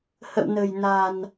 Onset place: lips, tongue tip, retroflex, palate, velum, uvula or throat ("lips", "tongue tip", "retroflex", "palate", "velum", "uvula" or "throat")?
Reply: throat